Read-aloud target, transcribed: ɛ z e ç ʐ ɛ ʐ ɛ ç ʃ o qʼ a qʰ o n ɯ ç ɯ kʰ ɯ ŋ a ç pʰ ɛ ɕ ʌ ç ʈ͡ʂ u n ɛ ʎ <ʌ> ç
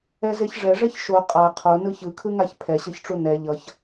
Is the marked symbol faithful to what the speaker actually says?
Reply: yes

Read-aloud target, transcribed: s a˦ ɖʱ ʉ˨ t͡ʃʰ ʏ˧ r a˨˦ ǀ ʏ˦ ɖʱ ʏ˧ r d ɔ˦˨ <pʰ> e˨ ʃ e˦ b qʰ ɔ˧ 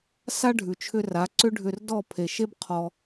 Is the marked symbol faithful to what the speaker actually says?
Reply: yes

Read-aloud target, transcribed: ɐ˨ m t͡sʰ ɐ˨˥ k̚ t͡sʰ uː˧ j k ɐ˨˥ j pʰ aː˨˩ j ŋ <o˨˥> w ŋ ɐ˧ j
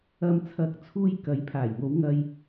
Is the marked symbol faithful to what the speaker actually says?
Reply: no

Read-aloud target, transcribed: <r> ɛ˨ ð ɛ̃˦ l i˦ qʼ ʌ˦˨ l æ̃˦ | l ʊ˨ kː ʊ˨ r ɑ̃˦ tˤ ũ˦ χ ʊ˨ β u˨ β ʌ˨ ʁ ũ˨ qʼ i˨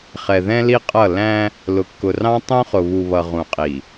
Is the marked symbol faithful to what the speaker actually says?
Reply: no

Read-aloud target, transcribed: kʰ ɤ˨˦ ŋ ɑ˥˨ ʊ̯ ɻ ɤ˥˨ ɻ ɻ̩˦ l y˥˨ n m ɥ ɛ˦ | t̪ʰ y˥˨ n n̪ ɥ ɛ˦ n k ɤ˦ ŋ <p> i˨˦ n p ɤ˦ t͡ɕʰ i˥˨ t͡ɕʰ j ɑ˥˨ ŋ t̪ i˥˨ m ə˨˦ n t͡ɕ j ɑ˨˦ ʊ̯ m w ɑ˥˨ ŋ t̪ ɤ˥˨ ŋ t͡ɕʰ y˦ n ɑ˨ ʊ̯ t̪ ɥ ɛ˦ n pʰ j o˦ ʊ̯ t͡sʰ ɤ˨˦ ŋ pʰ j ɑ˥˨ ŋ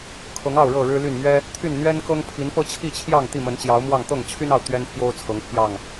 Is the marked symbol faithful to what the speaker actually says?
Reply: no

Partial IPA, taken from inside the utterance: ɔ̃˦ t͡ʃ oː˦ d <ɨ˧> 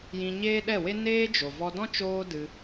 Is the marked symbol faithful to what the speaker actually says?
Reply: yes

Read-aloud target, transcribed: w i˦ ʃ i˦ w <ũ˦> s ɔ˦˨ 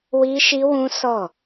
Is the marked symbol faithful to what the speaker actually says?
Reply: yes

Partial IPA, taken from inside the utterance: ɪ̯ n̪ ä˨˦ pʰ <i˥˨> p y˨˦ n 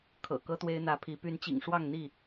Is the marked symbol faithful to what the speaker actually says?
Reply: no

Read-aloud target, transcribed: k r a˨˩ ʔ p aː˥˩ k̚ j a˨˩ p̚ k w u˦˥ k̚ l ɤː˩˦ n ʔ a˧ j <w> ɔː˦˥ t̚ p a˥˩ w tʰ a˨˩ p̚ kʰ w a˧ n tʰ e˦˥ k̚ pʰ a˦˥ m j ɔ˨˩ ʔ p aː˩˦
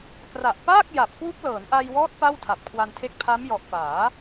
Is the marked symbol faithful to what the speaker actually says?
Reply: yes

